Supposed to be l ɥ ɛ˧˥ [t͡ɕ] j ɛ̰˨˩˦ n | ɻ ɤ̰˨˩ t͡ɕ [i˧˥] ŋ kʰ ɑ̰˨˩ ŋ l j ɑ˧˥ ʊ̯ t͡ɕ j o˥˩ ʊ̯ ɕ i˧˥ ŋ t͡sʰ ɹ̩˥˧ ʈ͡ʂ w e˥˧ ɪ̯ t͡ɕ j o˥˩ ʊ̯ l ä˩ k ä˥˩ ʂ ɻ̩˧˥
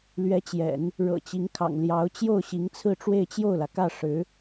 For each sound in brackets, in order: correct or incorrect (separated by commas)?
correct, correct